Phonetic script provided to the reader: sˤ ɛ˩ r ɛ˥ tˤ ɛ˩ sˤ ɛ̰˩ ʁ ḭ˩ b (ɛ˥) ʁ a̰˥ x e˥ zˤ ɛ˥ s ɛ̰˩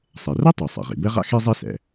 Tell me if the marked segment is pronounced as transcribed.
yes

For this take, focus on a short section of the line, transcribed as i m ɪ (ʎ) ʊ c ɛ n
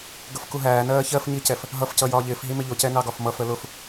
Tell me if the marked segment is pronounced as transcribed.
yes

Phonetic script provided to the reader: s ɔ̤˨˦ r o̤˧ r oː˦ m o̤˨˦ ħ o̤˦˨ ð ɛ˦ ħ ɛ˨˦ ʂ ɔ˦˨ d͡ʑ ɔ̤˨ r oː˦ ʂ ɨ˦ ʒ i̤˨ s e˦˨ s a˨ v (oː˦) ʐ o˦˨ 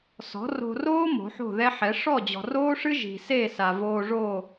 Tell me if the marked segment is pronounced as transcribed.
no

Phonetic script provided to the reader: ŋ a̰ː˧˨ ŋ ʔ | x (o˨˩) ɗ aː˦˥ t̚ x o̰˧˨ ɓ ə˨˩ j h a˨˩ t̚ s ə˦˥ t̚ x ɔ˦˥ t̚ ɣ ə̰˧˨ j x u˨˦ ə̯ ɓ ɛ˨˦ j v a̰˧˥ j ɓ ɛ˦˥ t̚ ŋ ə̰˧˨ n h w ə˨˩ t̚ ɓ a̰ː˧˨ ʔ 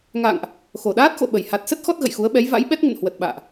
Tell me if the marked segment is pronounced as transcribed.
yes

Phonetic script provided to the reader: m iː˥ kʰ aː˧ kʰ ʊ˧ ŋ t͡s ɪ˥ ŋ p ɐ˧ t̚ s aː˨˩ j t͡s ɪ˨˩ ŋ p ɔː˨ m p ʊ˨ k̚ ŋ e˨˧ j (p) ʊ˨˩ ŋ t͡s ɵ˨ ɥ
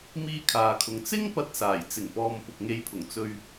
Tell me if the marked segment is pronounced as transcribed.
no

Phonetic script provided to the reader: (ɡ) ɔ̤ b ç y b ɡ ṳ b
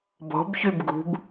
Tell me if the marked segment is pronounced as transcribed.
no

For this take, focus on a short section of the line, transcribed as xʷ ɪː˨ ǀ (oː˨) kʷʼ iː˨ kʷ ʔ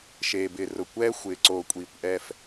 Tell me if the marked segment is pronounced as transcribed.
yes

